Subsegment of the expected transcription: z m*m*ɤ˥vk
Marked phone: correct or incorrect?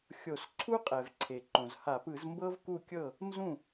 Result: incorrect: b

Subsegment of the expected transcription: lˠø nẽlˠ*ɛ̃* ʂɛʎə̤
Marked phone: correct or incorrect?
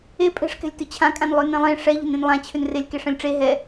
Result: incorrect: ẽ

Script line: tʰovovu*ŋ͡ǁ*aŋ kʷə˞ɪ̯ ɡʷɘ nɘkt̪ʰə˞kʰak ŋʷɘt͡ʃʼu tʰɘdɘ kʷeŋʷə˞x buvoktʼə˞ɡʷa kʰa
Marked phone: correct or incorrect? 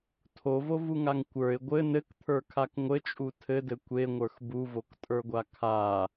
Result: incorrect: ŋ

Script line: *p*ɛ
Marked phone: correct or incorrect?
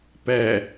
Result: correct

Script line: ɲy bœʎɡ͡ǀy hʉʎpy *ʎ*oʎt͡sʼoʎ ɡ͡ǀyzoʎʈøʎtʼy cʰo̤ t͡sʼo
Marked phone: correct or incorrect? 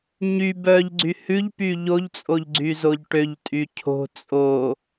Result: correct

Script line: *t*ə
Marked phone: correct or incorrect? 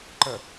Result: incorrect: ǃ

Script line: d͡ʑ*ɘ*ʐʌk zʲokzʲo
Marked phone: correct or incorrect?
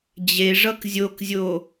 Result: incorrect: e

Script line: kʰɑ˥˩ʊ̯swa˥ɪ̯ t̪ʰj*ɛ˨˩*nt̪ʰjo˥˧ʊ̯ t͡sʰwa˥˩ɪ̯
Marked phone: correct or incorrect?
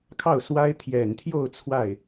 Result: correct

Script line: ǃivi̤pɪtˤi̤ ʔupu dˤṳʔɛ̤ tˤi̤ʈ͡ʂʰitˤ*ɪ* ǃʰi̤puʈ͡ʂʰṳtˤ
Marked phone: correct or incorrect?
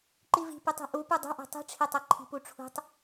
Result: incorrect: ɛ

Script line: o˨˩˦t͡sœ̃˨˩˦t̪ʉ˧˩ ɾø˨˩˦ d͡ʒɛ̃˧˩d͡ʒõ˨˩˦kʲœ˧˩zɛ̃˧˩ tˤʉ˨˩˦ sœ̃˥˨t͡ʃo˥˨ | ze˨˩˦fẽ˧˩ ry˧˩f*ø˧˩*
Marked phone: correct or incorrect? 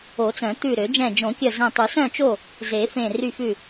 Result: incorrect: ʉ˧˩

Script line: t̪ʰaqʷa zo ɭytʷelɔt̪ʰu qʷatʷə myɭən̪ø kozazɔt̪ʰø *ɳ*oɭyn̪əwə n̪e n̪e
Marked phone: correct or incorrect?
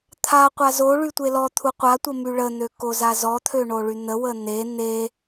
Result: correct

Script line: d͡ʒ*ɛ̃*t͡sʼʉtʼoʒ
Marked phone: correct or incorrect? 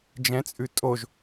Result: correct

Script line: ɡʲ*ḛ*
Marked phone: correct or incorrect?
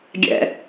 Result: incorrect: ɛ̰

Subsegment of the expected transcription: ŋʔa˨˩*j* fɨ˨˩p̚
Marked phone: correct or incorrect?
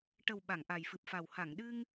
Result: correct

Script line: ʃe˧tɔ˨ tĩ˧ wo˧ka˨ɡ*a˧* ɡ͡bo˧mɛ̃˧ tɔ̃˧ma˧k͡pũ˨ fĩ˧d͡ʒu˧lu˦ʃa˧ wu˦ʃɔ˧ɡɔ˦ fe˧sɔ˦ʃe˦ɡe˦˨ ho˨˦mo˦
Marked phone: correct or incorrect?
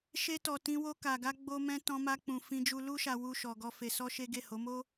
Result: correct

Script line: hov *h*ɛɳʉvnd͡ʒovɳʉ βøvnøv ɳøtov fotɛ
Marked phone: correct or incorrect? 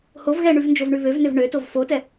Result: incorrect: ɣ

